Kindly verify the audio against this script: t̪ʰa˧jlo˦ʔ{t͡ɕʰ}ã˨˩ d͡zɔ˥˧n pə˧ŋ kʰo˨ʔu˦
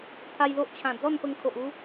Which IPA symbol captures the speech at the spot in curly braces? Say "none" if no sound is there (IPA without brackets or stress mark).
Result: t͡ɕʰ